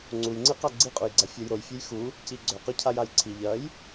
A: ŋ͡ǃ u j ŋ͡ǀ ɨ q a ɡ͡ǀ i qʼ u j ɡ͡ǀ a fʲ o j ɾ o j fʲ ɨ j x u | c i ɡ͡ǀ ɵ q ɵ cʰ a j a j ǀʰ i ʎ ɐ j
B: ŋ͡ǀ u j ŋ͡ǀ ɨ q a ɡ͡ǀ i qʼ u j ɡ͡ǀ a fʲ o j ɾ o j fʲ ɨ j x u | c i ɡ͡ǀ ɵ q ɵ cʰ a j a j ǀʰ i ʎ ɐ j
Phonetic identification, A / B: B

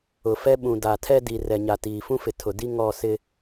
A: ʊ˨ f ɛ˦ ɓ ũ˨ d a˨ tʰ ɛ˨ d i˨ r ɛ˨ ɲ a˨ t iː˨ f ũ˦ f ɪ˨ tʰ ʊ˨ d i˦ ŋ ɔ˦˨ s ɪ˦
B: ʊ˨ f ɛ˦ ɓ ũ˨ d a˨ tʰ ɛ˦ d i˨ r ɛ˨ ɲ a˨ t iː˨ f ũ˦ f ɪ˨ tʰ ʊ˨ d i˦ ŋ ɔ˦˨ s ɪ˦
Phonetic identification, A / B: B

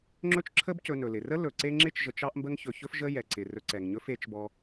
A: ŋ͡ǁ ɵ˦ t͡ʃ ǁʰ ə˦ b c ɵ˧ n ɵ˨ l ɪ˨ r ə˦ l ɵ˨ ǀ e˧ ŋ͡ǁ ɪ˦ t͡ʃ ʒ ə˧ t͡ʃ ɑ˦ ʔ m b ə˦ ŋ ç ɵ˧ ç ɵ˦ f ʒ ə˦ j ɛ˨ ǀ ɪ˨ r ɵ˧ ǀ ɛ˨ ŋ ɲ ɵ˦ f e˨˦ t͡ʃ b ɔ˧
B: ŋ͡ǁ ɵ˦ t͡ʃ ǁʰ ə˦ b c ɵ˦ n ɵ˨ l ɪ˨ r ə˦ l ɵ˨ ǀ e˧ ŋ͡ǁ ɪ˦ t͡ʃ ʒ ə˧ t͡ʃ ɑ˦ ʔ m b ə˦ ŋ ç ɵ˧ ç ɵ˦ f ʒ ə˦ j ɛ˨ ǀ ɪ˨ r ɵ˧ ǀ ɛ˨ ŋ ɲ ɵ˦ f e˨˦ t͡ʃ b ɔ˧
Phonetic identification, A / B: A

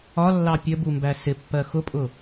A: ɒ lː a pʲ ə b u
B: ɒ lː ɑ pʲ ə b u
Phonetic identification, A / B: B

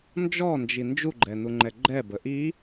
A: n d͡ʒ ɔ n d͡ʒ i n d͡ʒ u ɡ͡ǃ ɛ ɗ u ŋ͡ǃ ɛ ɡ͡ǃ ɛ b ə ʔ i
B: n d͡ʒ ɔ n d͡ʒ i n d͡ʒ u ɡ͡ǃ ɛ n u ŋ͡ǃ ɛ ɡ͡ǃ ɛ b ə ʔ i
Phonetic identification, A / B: B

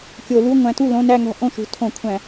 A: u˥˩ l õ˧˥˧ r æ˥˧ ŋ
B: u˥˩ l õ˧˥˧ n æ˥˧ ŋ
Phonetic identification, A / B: B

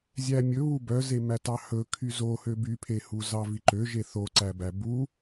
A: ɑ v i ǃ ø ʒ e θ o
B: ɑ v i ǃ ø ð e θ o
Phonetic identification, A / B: A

